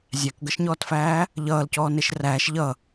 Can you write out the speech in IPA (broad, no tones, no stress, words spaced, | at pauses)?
zʲækɡʌʃɲɔːtfæː | ʎʌːlcɔːneʃ ræːʃ ʎʌ